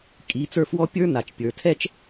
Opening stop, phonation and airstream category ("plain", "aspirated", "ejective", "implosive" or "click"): ejective